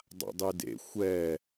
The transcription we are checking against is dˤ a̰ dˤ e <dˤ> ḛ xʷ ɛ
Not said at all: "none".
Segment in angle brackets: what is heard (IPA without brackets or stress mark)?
d